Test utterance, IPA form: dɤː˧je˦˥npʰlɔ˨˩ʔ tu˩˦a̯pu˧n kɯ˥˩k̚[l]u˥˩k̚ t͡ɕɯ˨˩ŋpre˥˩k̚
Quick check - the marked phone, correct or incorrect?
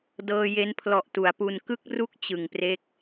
incorrect